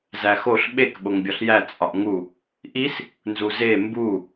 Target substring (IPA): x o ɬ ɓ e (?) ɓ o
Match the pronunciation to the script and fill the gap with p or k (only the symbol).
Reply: k